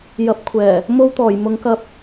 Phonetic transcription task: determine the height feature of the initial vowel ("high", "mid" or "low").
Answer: low